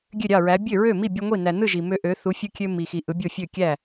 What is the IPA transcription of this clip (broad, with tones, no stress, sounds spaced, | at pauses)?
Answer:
ɡʲ ø˥˩ ɾʲ ɑ˥˩ ɹ æ˨˥ bʲ ø˥˩ ɹ ø˥˩ m i˥˩ bʲ e˦ ŋʷ i˥˩ n æ˨ n ɯ˥˩ ʒ i˨ m ø˦ ʔ ø˨˥ θ u˨˥ fʲ ɯ˦ kʲ ø˦ m i˨ x i˨ ʔ ɯ˨˥ bʲ o˥˩ fʲ ø˥˩ kʲ æ˥˩